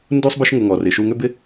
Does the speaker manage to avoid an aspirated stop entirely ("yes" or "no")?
yes